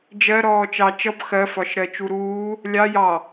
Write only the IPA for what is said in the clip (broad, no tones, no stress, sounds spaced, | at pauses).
d͡ʒ ɜ ɾ ɔː t͡ʃ ɑ t͡ʃ ʌ b x ɜ f ɒ ʃ ɾ ɜ t͡ʃ u ɾ uː | lʲ ɑ j ɑ